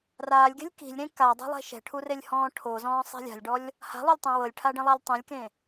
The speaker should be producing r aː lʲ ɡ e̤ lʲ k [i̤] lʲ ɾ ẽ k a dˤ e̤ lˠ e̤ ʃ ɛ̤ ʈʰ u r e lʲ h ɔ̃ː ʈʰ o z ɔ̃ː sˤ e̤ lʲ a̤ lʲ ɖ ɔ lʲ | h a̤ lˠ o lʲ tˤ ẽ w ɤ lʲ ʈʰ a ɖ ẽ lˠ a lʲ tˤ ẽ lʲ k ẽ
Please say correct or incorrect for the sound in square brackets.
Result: correct